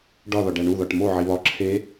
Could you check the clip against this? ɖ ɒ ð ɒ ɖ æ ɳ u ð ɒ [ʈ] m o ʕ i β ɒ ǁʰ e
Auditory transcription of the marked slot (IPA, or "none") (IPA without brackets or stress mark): ʈ